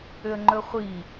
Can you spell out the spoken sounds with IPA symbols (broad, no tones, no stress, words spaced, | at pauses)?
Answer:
ʏə̯ŋ͡ǃɵχʷi